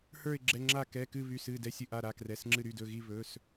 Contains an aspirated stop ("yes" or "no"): no